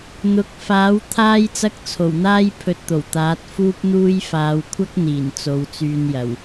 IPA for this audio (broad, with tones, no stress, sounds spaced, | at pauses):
n̪ ʊ˨˥ k̚ f aː˨˥ w t̪ʰ aː˥ j t͡s ɐ˥ k̚ t͡sʰ o˨˩ w n̪ aː˥ j pʰ ɵ˧ t̚ t̪ o˨˩ w t̪ aː˨˥ t̚ f uː˥ p̚ n̪ uː˥ j f aː˨˧ w kʷʰ ɐ˥ k̚ n̪ iː˨˩ n t͡s o˨˧ w t͡s yː˧ n j ɐ˨˩ w